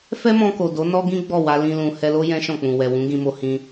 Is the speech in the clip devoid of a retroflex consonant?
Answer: yes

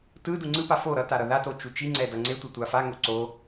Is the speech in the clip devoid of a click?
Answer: no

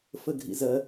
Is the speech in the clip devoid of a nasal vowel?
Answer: yes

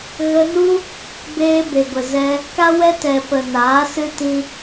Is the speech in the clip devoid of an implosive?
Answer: yes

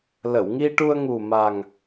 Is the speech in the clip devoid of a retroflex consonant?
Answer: no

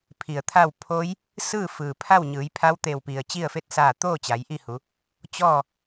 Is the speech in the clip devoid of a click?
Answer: yes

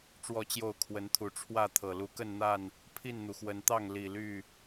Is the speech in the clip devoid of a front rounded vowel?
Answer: no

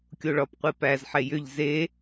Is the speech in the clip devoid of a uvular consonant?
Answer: no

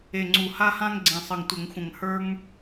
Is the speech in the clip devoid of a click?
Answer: no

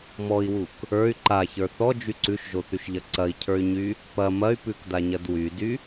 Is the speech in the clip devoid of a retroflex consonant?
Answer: yes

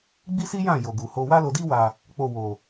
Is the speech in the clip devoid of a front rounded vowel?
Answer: yes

